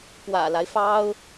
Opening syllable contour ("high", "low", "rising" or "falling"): low